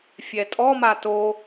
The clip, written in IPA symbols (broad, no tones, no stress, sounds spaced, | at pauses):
fʲ ɛ tʼ ɔ m a t o